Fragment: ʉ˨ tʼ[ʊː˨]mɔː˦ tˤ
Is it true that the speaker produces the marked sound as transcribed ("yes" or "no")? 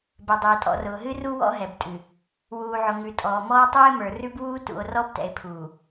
no